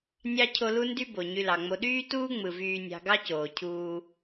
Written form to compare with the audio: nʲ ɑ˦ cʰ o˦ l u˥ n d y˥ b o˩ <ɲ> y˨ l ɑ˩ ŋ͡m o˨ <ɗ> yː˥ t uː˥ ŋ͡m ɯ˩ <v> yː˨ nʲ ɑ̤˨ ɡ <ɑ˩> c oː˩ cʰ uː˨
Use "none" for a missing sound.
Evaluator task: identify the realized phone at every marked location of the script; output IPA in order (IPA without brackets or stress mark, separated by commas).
ɲ, ɗ, v, ɑ˦